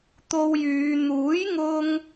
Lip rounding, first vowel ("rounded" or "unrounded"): rounded